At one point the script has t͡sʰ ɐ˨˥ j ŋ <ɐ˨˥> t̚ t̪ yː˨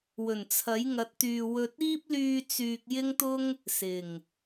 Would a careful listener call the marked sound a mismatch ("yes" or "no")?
no